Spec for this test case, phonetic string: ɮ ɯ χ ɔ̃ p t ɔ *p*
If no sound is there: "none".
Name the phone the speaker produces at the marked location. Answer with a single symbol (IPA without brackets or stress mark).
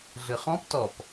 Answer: p